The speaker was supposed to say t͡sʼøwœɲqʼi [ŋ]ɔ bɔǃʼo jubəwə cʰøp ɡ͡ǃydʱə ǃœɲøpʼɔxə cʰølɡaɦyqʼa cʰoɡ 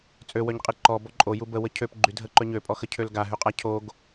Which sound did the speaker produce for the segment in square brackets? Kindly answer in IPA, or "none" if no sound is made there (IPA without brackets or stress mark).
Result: ǃ